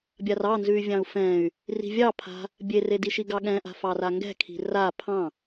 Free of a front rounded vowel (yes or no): no